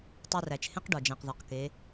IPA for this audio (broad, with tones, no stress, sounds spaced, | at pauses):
tˤ u˧ r æ˩ t͡ʃ h ẽ˥ q ɖ ɒ˩ d͡ʒ æ̃˩ q ð ɒ˩ q k e˩˧